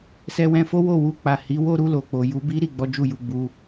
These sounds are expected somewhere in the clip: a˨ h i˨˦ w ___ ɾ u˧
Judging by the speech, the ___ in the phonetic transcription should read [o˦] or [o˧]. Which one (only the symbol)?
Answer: o˦